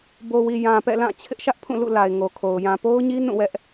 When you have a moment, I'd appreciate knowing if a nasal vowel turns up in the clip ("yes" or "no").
yes